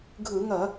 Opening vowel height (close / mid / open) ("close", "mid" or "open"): close